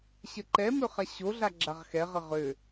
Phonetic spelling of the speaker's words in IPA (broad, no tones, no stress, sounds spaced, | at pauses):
ɕ ə ǃ ɛ m ø χ a ɕ o ɮ a ɡ͡ǁ a ʁ x ɛ ʁ ə ʁ ø